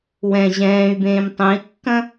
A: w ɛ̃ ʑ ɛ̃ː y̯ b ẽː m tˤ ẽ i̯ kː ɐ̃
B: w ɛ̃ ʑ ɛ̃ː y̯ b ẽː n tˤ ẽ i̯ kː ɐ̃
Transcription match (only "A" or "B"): A